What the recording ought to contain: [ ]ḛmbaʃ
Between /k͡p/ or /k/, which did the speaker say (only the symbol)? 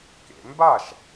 k